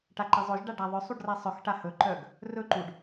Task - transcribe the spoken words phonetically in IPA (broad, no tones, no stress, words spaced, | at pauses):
ʈaǃɛzˤɵʒɖa ɖaðˤœsˤuɖ ræsˤœxʈa hɵǃœɡ | rɵǃuɖ